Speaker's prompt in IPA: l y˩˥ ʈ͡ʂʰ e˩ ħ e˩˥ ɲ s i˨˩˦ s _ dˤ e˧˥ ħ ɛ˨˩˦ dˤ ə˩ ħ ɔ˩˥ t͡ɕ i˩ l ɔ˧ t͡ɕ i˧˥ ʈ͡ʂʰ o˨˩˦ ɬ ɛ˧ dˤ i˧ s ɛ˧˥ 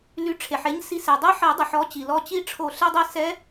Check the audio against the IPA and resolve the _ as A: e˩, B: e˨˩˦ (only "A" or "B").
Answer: A